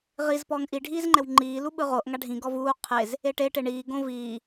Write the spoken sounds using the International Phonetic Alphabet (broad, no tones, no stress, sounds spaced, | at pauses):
ʁ i z p ɔː ŋ ʔ i ɖʱ iː z ŋ͡ǃ ɛ w ŋ͡ǃ iː l u ɓ ɯ ʁ o ʔ ŋ a ɖʱ ĩ ɡ ɔ v uː qʰ e z | e ʈ e ʈ e ɳ iː ɡ õ v iː